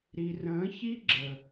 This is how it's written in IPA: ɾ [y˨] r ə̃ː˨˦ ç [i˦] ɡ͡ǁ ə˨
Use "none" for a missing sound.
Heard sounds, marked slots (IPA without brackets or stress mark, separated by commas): i˨, i˦